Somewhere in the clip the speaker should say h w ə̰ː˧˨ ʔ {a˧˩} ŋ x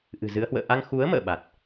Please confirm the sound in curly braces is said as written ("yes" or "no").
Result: no